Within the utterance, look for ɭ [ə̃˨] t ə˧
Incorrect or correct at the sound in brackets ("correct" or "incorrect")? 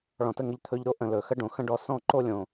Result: incorrect